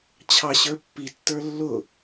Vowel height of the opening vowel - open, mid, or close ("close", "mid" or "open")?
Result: open